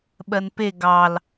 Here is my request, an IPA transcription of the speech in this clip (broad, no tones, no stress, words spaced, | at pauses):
ɓɜnpe ɡɑl